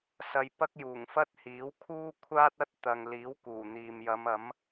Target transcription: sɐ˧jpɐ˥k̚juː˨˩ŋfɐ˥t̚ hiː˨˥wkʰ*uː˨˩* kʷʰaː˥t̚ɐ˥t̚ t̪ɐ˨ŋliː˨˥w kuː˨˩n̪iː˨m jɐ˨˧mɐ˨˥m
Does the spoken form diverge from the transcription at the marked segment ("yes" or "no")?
yes